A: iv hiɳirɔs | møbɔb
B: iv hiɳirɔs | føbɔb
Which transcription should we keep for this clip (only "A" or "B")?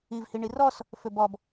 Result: B